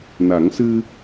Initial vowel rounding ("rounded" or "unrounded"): unrounded